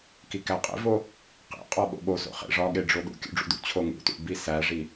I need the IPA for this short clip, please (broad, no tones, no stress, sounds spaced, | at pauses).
k i k æ qʼ ḛ v o | q ḛ qʼ ɒ ɓ o̰ ɓ o s o̰ χ ḛ ʐ ɒ ɠ e ɖ͡ʐ o ɗ ṵ kʲ ṵ ɖ͡ʐ ṵ d ṵ t͡ɕʰ o ŋ ṵ t ṵ b i s æ ʐ i